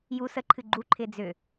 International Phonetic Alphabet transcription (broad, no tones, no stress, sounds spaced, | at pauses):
j u s ə ǃʰ ɨ ɡ͡ǃ u ǃʰ ɪː d͡z ʏ